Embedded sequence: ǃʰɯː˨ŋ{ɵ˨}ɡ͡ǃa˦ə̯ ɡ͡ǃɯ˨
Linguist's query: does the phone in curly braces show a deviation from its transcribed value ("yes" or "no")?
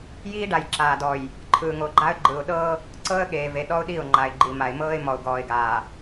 yes